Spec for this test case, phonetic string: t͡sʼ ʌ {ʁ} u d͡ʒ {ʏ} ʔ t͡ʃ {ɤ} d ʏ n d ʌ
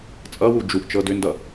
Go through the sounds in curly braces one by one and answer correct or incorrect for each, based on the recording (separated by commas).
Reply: incorrect, incorrect, correct